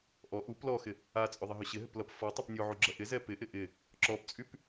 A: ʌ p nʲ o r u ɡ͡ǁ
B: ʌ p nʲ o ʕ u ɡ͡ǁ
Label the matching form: B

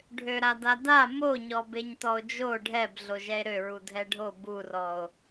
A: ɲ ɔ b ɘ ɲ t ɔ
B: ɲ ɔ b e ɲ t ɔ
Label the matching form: B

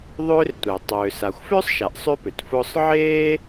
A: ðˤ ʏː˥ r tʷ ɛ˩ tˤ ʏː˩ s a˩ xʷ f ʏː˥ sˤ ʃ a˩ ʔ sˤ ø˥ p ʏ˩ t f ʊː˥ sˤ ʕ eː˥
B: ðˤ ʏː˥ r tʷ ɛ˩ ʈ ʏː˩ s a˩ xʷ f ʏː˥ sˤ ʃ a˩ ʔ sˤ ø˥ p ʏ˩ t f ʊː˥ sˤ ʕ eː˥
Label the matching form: A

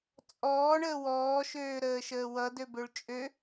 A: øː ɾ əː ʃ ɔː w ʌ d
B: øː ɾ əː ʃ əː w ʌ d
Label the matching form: B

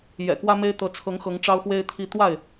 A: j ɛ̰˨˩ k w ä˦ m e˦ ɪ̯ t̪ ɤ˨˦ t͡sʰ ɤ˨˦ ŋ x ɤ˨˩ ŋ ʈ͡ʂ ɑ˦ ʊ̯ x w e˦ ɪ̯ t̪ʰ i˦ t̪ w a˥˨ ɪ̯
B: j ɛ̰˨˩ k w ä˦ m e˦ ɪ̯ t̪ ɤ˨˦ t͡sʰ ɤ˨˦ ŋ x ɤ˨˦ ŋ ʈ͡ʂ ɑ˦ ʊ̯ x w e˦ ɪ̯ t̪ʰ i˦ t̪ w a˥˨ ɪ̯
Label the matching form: B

